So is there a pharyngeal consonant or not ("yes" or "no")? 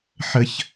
yes